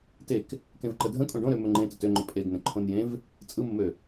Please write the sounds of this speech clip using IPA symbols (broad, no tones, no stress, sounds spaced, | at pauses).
t e k | k ẽ v ǃ ə dʱ ə̃ kʼ õ ɖ õ ɾ ø m ɵ ŋ͡ǃ ẽ t ə t ø ŋ͡ǃ ɵ pʼ e ɡ n ə̃ ǃʰ õ n j ẽ v | t͡sʼ ɯ m ə m ø